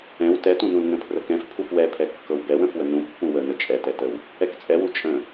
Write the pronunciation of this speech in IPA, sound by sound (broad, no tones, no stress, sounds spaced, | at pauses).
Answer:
ɛ̃ w t ɛ t ũ n ũ l n ə̃ pʰ r ə k ɛ̃ f pʰ u f w ɛ pʰ ɛ kː ɤ w b ɛ w ə̃ f w ə n ũ pː ũ w ə n ə t͡ʃʼ ɛ t ɛ t ə w | ɛ k t͡sʼ ɛ w u t͡ʃʼ ə̃